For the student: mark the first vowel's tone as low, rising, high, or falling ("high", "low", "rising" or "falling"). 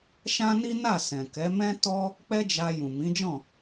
high